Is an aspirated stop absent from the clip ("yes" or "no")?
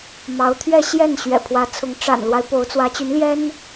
no